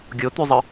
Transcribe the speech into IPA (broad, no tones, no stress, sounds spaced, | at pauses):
ɡʲ o t̪ y zˤ ɯ